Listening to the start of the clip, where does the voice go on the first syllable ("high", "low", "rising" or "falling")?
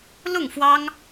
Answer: falling